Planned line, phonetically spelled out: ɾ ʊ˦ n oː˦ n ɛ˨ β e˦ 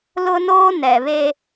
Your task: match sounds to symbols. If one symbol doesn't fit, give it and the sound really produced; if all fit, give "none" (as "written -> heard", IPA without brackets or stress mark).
ɾ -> l